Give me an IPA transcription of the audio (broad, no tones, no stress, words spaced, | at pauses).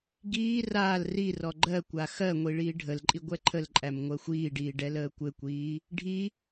ɡiː raːl rirɔ ɡ͡ǃɜkʷa xɜŋʷi ɭiːɖʱəlǃʼi ɡʷɛǃʰəlǃʼæm ŋʷɜxʷiːɖiː ɖɛləːkʷɘkʷiː | ɖʱi